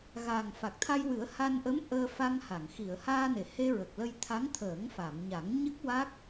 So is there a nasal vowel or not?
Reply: no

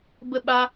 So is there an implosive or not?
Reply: yes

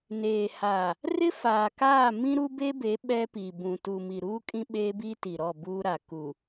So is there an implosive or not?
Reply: yes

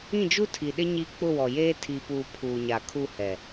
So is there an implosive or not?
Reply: yes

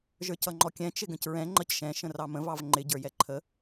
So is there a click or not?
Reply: yes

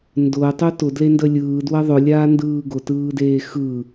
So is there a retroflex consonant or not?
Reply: no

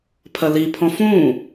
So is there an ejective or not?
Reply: no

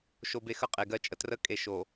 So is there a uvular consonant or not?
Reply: yes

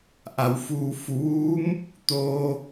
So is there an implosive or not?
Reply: no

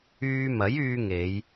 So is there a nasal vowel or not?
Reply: no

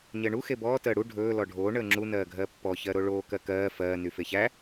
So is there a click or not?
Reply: yes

